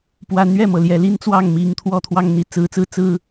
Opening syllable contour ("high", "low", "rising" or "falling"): rising